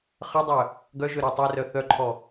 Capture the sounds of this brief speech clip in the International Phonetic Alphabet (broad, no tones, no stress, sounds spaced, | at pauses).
χ ə dˤ œ | ɡ œ ʒ ø ɾ a tˤ e r œ θ œ ǃʰ ɔ